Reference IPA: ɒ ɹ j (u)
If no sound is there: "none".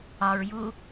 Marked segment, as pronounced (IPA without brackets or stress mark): u